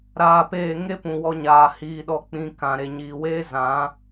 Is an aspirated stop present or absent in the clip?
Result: absent